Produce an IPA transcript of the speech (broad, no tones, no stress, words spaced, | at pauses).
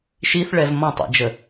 ʃiθɭɛv mɔ̃tˤḭd͡ʒə